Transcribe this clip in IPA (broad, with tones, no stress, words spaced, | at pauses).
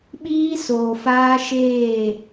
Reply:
ɓiː˦soː˨ faː˦ʃeː˦˨